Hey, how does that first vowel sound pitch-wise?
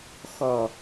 low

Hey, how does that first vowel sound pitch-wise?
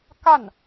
falling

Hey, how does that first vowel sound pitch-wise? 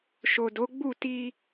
low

